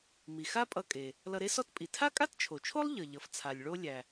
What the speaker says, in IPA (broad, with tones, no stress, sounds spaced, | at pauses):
m i˩ x a˥ pʼ ʌ˧ kʼ e˩ | l ʌ˧ ɾ e˥ s ɔ˥ t pʼ i˩ tʰ a˥ kʼ a˥ t t͡ʃʰ o˩ t͡ʃʰ o˥ lˠ ʎ ʌ˩ ʎ ʌ˩ f t͡sʰ a˩ lʲ ɭ o˧ lʲ æ˩